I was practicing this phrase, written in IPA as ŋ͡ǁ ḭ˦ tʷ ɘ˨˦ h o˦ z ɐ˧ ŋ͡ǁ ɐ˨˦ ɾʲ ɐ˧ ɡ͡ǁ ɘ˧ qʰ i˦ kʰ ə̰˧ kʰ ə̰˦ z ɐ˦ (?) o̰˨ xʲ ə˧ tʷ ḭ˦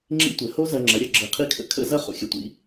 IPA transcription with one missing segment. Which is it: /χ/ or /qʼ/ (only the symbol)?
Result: χ